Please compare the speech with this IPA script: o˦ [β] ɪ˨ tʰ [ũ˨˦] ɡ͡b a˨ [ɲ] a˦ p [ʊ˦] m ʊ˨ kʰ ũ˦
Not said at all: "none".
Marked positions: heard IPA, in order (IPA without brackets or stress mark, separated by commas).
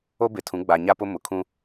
b, ũ˨˦, ɲ, ʊ˦